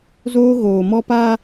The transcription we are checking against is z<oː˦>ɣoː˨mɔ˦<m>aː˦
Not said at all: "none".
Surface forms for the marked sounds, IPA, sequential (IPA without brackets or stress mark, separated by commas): oː˦, p